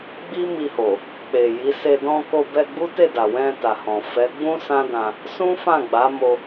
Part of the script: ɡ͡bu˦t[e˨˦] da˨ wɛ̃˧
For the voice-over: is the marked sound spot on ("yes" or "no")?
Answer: no